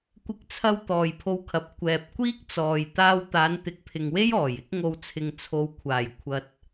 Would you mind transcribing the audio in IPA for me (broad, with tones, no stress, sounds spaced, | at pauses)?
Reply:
kʷ ɪ˧ k̚ t͡sʰ ɐ˧ w t̪ ɔː˨ j pʰ o˧ w kʰ ɐ˨ p̚ kʷ ɛː˨ p̚ kʷ iː˥ k̚ t͡s ɔː˨ j t̪ aː˧ w t̪ aː˨˧ n t̪ ɪ˨˥ k̚ pʰ ɪ˨ ŋ w e˥ j ɔː˨˩ j ɪ˥ k̚ ŋ o˧ w t͡sʰ ɪ˨ ŋ t͡sʰ o˨˧ w kʷʰ aː˨˩ j kʷʰ ɐ˧ t̚